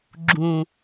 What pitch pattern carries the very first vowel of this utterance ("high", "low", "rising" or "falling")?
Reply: low